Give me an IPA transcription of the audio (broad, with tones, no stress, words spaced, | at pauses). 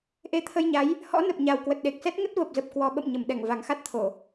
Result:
ʔe˨˦t̪ʰə˧jɲa˨˦j | hɔ̰˧˥nə˨˩p̚ɲa˨˩w kwə˨˩t̚ɗe˨˩k̚sɛ˦˥t̚ ŋə˦˥t̚və˨˩p̚zə˨˩p̚ kwɔ˨˩ɓə̰˧˨m ɲə˧˩m ɗɛ˧˩ŋva˨˩ŋxa˦˥t̚t̪ʰo˧˩˨